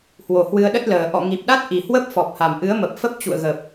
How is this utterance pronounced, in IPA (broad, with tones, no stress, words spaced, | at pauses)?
hwo˨˩hwɨ˧ə̯ɗə˦˥t̚ləː˨˩ ʔɔ̰˧˨ŋi˨˩p̚ɗa˦˥t̚ ʔi˨˩hwə˦˥p̚fɔ˨˩p̚ha˨˩m ʔɨ˨˦ə̯mə˨˩p̚fə˦˥p̚ t͡ɕṵ˧˨ə̯ɣə˨˩p̚